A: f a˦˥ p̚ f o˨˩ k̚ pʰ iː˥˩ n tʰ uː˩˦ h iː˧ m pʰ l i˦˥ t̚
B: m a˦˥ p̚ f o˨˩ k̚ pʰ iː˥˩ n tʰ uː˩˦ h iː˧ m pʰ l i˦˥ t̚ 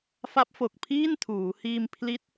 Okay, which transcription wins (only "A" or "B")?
A